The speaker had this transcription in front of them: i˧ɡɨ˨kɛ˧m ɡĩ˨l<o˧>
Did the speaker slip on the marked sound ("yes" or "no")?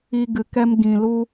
yes